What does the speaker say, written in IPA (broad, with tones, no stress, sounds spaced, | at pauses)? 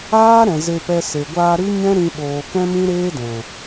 aː˦ ɾ ɛ̃˨ z e˧ p ɛ˧ s e˨ ɡʷ aː˧ ɾ ɨ˦ ɲ ɛ̃˦ ɾ ĩ˧ ɓ oː˨ k ɛ̃˦ m ĩ˦ ɾ eː˦ d ɛ̃˨